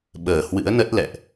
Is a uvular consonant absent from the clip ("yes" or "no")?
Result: yes